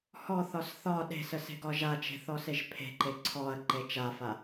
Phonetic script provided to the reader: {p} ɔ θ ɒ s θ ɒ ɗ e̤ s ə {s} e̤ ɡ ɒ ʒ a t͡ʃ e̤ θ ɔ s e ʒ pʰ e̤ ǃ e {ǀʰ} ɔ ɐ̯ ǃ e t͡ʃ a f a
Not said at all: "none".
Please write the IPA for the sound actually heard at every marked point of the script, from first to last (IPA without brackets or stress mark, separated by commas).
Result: h, s, ǀʰ